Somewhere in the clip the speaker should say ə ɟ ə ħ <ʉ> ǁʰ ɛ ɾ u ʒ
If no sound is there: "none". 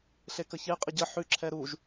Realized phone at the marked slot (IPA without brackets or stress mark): ʉ